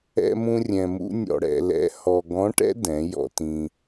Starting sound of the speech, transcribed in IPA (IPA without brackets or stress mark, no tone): ɛ̰